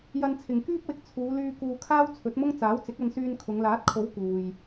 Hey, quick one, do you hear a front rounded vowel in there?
yes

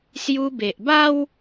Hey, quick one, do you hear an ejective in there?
no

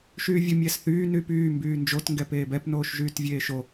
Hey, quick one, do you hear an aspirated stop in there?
no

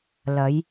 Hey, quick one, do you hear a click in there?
no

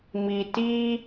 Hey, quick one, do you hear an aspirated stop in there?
no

